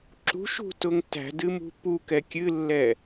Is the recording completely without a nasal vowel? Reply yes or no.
yes